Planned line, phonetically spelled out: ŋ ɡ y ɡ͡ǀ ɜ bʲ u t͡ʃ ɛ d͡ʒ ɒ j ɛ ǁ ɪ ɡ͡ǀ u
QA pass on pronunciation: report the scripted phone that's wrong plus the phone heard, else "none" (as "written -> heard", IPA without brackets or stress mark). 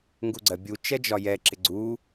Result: y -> u